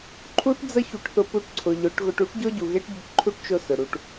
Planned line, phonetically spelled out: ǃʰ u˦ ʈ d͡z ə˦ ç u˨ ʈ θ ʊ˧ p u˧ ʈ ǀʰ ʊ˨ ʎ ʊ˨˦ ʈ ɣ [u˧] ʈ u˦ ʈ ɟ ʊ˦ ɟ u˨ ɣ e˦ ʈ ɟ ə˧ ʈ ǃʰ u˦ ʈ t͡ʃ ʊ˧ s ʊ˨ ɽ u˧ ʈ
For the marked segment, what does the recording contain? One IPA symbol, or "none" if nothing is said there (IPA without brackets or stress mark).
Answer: ʊ˧